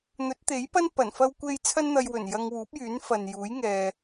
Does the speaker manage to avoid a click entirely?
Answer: yes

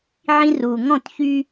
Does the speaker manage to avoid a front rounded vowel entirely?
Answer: no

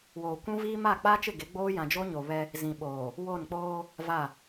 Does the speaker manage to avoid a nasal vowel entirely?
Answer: no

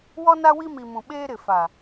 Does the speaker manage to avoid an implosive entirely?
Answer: no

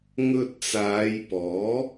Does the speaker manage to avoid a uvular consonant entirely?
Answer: yes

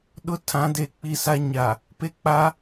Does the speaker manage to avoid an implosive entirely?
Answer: no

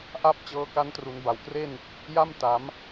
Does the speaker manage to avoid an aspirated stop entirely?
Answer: yes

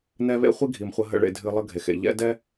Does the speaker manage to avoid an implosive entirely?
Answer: yes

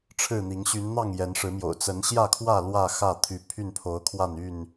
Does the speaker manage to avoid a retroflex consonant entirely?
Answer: no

